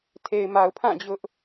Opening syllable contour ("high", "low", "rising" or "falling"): low